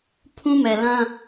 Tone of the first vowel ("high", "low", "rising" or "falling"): high